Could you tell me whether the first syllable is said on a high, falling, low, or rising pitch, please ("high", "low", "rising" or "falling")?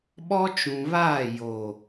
high